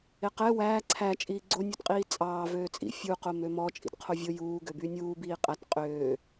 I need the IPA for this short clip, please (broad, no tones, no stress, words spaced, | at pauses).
eqɛ wæː ǀʰæ t͡ʃʼiːɡ͡ǀonʲutqʼiː t͡sʼɑː vøːt͡sʼḭ fʲuqom ømɔt͡ʃʼḭt qʰovʲo juːɡøby nʲuː biːqʼæt qʼøː